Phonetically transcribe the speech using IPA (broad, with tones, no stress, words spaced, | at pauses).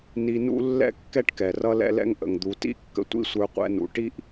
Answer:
ni˧nṵ˥ lːɛ̰˥kːɛ˥ʈkɛ˩ rʌ˧lɛ̰˧lɛ̰˧ŋ ʔə̰˩ŋd̪u˩tḭ˥ kːə̰˧tʷḭ˥sʷə˞˧ qʷɛ̰˧nṵ˩ ʈi˥ʔ